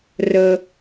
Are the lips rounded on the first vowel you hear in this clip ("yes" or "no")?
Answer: no